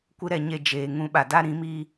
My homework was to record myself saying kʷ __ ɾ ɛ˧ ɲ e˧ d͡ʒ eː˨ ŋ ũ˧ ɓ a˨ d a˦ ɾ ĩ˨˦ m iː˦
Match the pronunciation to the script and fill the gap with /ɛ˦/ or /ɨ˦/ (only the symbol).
ɨ˦